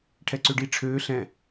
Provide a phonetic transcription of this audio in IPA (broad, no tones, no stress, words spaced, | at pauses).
ʈʰɛǀøɖi ʈ͡ʂʰøː ɬɛ̃